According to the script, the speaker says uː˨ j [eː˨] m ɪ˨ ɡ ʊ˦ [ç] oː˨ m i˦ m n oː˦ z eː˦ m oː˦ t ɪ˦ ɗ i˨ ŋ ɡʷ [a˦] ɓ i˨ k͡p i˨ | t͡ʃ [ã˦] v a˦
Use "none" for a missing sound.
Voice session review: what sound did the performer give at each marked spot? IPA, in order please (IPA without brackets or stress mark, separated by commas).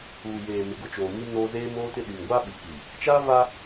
eː˨, t͡ʃ, a˦, a˦